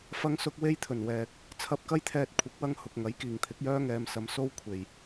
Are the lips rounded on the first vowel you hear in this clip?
no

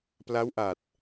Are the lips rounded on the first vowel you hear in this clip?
no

